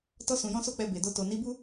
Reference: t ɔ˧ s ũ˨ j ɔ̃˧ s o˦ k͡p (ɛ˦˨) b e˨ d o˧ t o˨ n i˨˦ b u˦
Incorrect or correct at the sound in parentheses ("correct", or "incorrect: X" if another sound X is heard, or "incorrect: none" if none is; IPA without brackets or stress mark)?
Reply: incorrect: ɛ˧